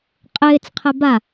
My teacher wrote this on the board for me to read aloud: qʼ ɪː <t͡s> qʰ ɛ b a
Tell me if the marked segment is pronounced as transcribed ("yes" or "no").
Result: yes